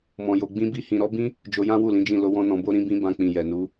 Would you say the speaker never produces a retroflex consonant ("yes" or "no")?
yes